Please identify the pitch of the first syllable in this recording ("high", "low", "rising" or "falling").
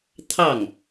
falling